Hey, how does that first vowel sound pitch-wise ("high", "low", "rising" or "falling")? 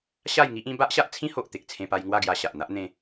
falling